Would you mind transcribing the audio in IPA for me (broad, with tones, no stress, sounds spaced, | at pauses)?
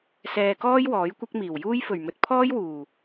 s ɛː˧ k ɔː˥ j w ɔː˨˥ j kʷ ɐ˥ k̚ m iː˨˩ w j uː˥ j f ɵ˨˩ ɥ m ɵ˨˥ t̚ pʰ ɔː˥ j w uː˨˩